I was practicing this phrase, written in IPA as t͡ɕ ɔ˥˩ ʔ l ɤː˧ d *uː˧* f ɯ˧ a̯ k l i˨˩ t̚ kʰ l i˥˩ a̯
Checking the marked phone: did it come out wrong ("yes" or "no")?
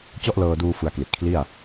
no